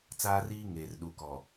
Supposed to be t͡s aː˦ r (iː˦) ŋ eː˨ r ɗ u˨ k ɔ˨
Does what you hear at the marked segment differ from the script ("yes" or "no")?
no